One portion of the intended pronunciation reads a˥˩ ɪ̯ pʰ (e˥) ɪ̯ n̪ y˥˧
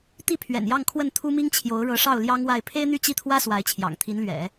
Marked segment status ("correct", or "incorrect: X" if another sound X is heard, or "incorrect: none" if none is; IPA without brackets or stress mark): correct